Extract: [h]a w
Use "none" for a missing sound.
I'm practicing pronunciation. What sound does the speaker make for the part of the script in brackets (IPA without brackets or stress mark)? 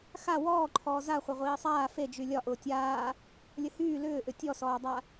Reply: x